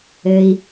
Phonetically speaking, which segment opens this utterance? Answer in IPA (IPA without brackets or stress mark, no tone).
ɘ